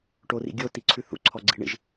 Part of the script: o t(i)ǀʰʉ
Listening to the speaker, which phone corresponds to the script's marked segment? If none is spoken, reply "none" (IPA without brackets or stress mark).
i